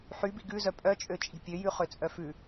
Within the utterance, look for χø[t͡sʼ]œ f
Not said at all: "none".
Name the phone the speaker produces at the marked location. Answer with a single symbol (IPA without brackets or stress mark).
t͡sʼ